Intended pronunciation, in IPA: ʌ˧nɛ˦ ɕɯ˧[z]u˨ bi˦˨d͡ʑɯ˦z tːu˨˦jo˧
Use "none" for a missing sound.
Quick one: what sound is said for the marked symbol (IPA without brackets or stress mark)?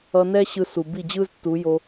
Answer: s